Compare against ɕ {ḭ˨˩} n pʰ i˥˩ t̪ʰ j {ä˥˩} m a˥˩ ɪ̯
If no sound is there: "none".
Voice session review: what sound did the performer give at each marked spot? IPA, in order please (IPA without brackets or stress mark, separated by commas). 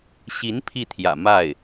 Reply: i˧˥, ä̰˨˩